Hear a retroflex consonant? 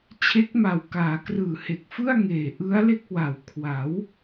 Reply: no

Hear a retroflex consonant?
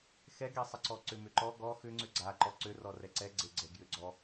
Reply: no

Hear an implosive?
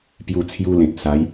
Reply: no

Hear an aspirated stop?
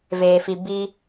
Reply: no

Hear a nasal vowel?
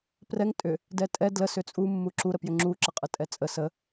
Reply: no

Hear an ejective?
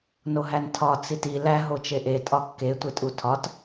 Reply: yes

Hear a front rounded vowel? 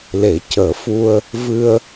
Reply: no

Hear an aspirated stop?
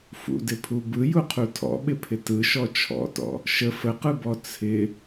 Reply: yes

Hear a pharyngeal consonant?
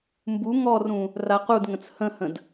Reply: no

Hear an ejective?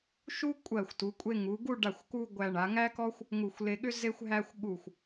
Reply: yes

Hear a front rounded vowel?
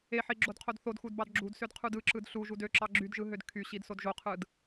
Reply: yes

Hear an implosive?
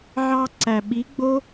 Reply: yes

